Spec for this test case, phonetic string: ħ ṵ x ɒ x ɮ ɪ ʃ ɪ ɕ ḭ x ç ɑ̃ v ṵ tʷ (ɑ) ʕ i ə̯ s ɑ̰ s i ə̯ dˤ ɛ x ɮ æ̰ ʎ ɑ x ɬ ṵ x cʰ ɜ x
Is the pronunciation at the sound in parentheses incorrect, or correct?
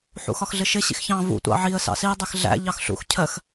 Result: incorrect